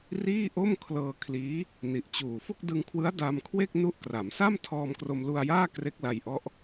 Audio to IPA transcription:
r iː˥˩ ʔ o˥˩ m kʰ l ɤː˧ kʰ l iː˦˥ | n i˨˩ ʔ t͡ɕ uː˨˩ f o˥˩ k̚ d ɯ˧ ŋ kʰ w ɯ˦˥ a̯ d a˧ m kʰ w e˥˩ k̚ n u˦˥ ʔ k r a˩˦ m s a˥˩ m tʰ ɔː˧ m k r o˧ m l u˧ a̯ j aː˥˩ k r e˦˥ k̚ l a˧ j ʔ ɔ˦˥ ʔ

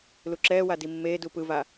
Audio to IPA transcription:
l u ǁ ɛː w a d i mː eː d u p ɯ v a

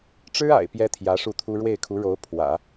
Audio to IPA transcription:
ʈ͡ʂ ɻ̩˥ a̰˨˩ ɪ̯ p j ɛ˥ t̪ʰ j ä˧˥ ʂ u˥˩ t̪ʰ u˥ ɻ w e˥˩ ɪ̯ kʰ u˧˥ ɻ o˧˥ ʊ̯ pʰ w ä̰˨˩˦

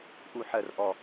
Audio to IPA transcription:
ʔ u˥˧ ħ ɜ˥˧ r ʔ ɔ˥˧

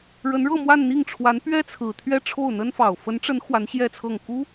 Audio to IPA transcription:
ɻ ə˧˥ n ɻ ɤ˥˧ m w a˥˧ n n̪ i˥˩ ŋ ʈ͡ʂʰ w a˧˥ n p ɥ ɛ˥ t͡sʰ ɹ̩˨˩ t̪ʰ ɥ ɛ˥˧ ʈ͡ʂʰ o˥˩ ʊ̯ n̪ ə˥ n f ɑ˨˩ ʊ̯ f ə˧˥ n ʈ͡ʂ ə˧˥ n x w a˧˥ n ɕ j ɛ˥˧ t͡sʰ ɤ˥˩ ŋ k u˥

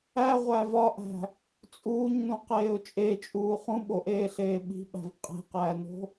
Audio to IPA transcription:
æ ʁʷ æ v ɒ ʔ æ̤ | t͡sʼ uː ɲ n ũ q eː ʊ̯ t͡ʃʼ e t͡ʃʼ uː χ ũ ɓ o ʔ eː ɬ eː ɓ i̤ ɓ æ̤ v qʼ e̤ q æː n o̤

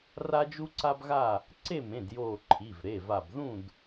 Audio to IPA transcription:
r a˦ d͡ʒ u˦ ǀ a˦ b ɣ a˥˨ | ǀ e˥˨ m ẽ˩˧˩ d j oː˧˩ ǃʰ i˩˧˩ v ɾ e˩˧˩ v a˧˩ b ð ũ˥˨ d

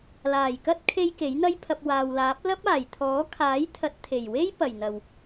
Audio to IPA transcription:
l aː˨˩ j k ɐ˥ t̚ kʰ e˧ j k e˨˥ j n̪ ɐ˥ j pʰ ɐ˧ p̚ w aː˨ w l aː˨˥ p̚ l ɐ˥ p̚ aː˨˩ j t̪ʰ ɔː˨˥ kʰ aː˨˥ j t̪ʰ ɐ˨˥ t̚ t̪ʰ e˨˩ j w e˥ j p ɐ˨˩ j n̪ ɐ˨˩ w

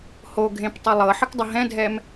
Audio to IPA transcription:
h o ɡʱ ẽ p tˤ ə lˠ ɤ ħ ə k dˤ ə ɦ ɛ̃ dʱ ɛ m

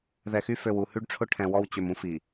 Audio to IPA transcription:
ð ɛ˨ x y˦ f ø˨ w u˨ h y˦ ɖ ʈ͡ʂʰ ʊ˦ ʈʰ ɛ̃˨ w ɔ˦ w t͡ɕ ø˨ m ũ˦ f i˨

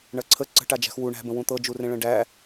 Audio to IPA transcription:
ɳ ɐ ǀʰ ə ǀ ə̤ ʈ a d͡ʒ æ̤ x w u ɳ æ̤ b ə̃ w ũ t̪ ɤ d͡ʒ u r ẽ ɭ ə̃ ɖ æ

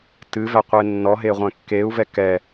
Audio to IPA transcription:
t ɨ v æ qʷ e nː ɔ ɦ e ʁʷ ɛ̃ kː e u̯ v ɛ k ɛ

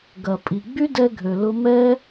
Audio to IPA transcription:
ɡ ɐ˨ pʼ i˨ ɡ͡b y˦ d ɛ˧ ɡʱ ø˨ l ʊ˧ m ɛ˦

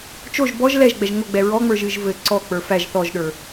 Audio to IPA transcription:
t͡ʃ o ʒ b ɔ ʒ l ɛ ʒ ɡ͡b ɛ ʒ ŋ o ɡ͡b ɛ ɹ ɔ ŋ͡m ə˞ ʒ ɨ ʒ v ɘ ǀ ɔ k͡p ə˞ f æ ʒ θ ɔ ʒ ɗ ə˞

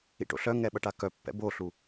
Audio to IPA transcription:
ḭ ʈ o̰ ɬ œ ŋ ɛ ɓ ɐ ʈ a k œ pː ɛ̰ b o ɬ u

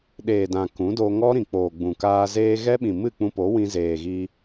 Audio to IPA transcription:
ɗ eː˨ d ã˨ k ũ˨˦ d o˧ ŋ ɔ˦ ɾ ĩ˨ k͡p oː˨ ɡ͡b ũ˨ k aː˧ z eː˧ ɣ ɛ˦ ɓ ĩ˨ m ɨ˦˨ k͡p ũ˧ p o˨˦ w ĩ˧ z eː˨ ɣ i˧

